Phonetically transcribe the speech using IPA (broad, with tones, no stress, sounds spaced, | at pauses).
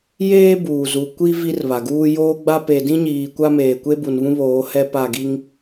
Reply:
j eː˦ b uː˨ z u˨ kʷ i˦ v i˦ r β a˨ ɡ uː˦ j oː˦ ɡ͡b a˦ p e˨ d ĩ˦ ɲ iː˨ kʷ a˦ m eː˨ kʷ e˦ b u˨ n β ũ˦ β oː˨˦ h ɛ˦ p a˦˨ ɡ i˦ ŋ